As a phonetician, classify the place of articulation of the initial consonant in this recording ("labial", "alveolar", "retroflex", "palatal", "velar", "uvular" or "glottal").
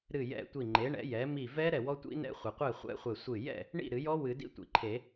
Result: alveolar